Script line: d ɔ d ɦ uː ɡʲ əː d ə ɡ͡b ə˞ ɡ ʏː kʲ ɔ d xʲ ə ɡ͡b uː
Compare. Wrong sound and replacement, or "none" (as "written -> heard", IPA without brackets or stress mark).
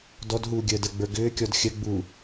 none